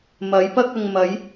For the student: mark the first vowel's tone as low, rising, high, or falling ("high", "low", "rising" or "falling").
rising